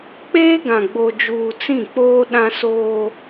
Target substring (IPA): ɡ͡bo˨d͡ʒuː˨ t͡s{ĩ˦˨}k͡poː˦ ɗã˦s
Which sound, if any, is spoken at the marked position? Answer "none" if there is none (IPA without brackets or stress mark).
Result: ĩ˦˨